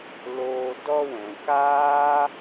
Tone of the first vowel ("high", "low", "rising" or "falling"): low